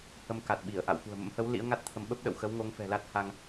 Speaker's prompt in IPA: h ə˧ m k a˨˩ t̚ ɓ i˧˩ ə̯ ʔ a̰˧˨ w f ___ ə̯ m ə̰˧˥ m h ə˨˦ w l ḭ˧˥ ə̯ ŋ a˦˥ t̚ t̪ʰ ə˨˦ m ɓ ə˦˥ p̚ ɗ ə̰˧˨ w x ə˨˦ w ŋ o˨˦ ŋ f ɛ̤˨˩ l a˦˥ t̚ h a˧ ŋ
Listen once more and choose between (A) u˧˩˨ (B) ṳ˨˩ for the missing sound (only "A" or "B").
B